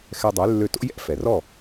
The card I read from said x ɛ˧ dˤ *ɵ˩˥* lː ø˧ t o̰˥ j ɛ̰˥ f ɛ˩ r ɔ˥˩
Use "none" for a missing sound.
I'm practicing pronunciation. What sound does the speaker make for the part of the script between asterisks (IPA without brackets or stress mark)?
ø˩˥